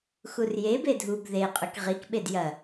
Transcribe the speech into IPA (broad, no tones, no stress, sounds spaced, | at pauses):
x u r j e b e dʱ u b ð e qʼ ʉ k ʁ i k ɓ e d j ɐ